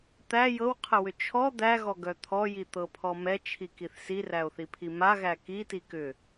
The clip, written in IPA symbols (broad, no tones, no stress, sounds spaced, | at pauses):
t̪ æ j ɤ w qʰ ə w ʏ t͡ʃʰ ɔ d̪ æ ɣ ɔ ɡ œ t̪ʰ ɔ j i t̪ ɤ pʰ ɔ m ɛ t͡ʃʰ i k i θ s i r æ o̯ θ i pʰ i m a ɣ æ k i t i k ʏ